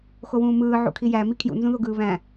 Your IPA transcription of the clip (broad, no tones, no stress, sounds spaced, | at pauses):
x o w ũː m ɯː ʕ ṵ kʰ i j æ m i kʰ j ṵ n z ũ ð o ɡ ɯː β æ̃